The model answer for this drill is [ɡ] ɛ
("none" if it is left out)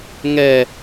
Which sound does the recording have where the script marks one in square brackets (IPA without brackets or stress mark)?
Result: ŋ